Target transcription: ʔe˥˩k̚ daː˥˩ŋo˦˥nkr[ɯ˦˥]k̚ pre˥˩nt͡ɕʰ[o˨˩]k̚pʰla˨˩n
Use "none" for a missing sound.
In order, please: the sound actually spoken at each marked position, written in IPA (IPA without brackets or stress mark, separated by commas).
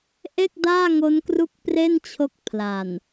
u˦˥, o˦˥